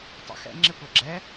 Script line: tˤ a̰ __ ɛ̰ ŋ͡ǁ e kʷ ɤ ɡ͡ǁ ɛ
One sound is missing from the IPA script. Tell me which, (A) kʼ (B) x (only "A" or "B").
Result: B